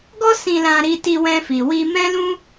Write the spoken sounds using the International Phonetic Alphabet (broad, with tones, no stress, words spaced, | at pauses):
ɡɔ˦sĩ˧lã˧ ɾi˧ti˧ wɛ̃˧ fi˨wi˧ mɛ̃˦ lũ˦